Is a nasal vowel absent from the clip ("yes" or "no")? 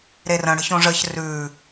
no